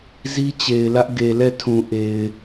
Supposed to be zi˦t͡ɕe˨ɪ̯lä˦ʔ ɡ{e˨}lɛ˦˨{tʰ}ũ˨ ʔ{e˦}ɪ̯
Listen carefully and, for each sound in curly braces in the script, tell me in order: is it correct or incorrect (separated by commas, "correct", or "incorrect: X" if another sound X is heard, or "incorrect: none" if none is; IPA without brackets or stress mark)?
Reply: correct, correct, incorrect: e˨